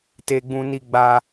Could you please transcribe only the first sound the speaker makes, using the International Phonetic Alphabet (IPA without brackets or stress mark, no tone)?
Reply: t